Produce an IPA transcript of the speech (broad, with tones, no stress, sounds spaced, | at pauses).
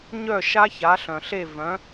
ɲ œ˥˩ ʃ a˥ ç a˩˥ ɬ œ̃˩ ɬ e˥˩ v œ̃˩˥